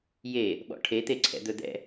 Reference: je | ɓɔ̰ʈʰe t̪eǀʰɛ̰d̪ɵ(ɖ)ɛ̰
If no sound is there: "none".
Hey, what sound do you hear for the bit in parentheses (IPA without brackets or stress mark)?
d̪